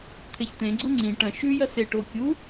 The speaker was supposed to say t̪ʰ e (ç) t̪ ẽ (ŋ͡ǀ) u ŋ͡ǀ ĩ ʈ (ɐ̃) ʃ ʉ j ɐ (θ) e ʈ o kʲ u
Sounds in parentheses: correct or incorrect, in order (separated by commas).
correct, incorrect, correct, incorrect